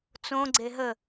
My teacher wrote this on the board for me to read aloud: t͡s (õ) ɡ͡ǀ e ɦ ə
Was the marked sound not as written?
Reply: no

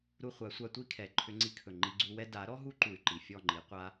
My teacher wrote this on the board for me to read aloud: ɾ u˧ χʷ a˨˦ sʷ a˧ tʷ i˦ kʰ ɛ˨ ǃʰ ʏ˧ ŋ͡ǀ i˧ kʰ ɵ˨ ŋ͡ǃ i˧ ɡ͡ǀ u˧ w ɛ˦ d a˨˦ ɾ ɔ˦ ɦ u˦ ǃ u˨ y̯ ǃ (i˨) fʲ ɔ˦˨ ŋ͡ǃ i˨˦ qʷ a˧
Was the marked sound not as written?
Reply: no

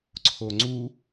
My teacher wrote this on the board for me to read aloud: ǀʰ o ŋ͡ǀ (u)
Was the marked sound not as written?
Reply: no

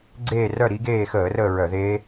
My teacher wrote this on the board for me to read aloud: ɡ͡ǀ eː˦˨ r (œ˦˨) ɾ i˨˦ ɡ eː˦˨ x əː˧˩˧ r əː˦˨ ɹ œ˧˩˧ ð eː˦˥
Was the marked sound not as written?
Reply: no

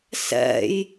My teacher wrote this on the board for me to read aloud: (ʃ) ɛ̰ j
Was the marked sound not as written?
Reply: yes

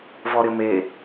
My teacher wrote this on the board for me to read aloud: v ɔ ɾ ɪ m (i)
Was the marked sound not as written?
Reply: yes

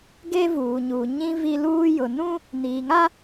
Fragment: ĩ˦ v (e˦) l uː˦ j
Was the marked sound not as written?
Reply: yes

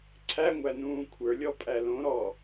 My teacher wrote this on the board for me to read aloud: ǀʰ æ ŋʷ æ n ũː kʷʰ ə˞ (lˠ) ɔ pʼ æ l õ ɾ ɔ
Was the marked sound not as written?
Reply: yes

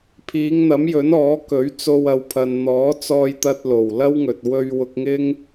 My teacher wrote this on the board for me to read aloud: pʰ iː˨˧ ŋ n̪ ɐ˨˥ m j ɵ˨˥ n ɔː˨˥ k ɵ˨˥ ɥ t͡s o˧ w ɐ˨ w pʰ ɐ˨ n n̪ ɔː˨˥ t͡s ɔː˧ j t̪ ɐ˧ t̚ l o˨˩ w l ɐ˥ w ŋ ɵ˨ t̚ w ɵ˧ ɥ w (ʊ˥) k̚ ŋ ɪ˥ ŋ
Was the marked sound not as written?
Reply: yes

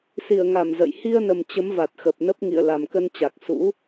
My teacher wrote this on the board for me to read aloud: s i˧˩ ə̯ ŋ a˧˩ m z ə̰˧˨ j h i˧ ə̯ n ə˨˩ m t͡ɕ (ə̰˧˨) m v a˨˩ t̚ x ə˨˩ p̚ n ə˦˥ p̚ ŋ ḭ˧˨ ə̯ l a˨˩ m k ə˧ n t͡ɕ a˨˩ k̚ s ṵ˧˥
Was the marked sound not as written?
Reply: yes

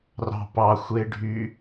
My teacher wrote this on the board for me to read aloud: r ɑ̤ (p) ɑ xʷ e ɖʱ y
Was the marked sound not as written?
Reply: no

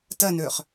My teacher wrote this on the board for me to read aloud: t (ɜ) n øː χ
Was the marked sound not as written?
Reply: no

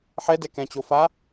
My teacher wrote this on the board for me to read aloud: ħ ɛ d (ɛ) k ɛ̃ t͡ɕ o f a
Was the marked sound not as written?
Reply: no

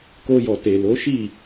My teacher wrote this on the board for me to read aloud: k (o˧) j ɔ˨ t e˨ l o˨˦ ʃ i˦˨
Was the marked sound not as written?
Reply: no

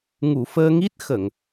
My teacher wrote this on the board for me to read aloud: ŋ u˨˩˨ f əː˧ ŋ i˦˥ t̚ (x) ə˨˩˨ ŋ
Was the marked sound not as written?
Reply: no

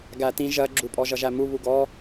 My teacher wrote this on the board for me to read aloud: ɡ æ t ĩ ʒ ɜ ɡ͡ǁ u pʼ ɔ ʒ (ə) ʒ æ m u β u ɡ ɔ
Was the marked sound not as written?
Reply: yes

